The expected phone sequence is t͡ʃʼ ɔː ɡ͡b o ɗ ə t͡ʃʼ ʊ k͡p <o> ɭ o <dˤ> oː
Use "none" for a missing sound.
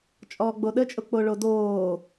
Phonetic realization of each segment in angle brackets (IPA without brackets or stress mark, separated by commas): o, d